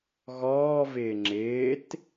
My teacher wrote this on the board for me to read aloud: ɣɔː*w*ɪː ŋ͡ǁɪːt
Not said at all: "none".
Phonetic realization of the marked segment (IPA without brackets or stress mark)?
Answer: v